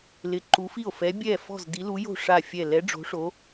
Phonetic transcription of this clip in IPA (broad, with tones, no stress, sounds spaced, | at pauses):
l ɪ˧˥ ǃ u˧˥ f i˥˨ o̯ f ɛ˧˥ bʲ ɛ˥˨ f ɔ̤˥˨ z d i˧˥ l u˧˥ j o̤˥˨ ʂ a˥˨ fʲ ɛ˥˨ l ɛ˧˥ ɖ͡ʐ o̤˧˥ ʂ o˧˥